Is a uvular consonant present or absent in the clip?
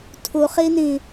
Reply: present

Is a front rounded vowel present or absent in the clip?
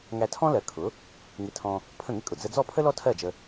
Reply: absent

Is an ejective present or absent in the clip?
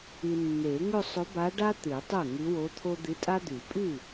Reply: present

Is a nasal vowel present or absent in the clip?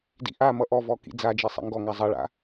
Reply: absent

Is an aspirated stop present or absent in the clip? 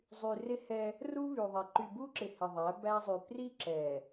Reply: absent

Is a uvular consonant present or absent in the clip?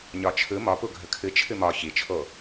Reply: absent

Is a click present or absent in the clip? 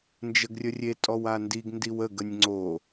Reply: present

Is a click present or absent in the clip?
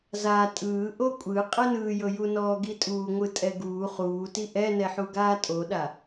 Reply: absent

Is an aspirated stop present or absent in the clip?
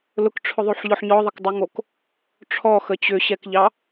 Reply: present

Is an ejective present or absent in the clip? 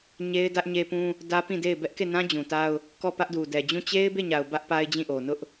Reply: absent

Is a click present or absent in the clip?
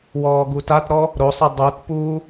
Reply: absent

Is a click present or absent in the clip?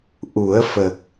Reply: absent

